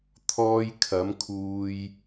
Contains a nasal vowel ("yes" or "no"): no